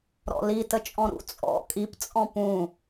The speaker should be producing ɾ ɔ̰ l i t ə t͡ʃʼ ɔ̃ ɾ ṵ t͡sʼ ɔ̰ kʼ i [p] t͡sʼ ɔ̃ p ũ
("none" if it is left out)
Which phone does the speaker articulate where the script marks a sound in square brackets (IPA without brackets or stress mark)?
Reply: p